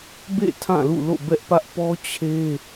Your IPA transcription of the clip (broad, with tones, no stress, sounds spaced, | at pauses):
b ḛ˦˨ tʰ ã˦˨ l ṵ˦˨ l o̰˦˨ b ɛ˦ ʔ p ä˦ ʔ p ɔ˦ t͡ɕʰ e˦